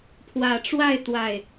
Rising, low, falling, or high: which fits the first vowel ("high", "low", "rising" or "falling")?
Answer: low